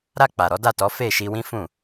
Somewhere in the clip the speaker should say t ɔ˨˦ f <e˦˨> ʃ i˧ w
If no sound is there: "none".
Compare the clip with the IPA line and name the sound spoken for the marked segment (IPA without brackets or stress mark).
e˦˨